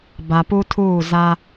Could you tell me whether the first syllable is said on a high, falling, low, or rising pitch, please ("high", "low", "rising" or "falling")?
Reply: low